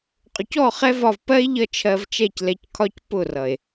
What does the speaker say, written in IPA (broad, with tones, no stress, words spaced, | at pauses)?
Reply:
qʼʊ˨cɔ˦˨ χɛ˦vɒ˧v pɜ˦e̯ʎʌ˧ t͡ʃʰɜ˧vt͡ʃɛ˦˨clɛ˧ckʰɒ˦c pʊ˦˨rʌ˨e̯